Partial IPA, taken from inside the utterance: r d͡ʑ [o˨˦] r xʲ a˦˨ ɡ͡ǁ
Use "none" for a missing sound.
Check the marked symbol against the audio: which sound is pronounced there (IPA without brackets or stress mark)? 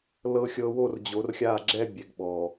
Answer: o˨˦